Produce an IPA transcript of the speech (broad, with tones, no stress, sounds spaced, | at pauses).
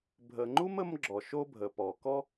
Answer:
bʱ ə˨ ŋ͡ǃ u˥ m ə˦ m ɡ͡ǁ ɔ˩ ʃ o˦ bʱ ə˩ p ɔ˩ k ɔ˦